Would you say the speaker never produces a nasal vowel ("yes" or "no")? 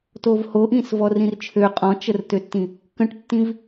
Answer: no